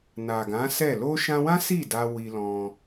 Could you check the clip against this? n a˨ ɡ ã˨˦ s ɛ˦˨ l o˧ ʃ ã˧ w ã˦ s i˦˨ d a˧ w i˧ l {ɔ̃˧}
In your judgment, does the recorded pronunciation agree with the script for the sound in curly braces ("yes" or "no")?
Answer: yes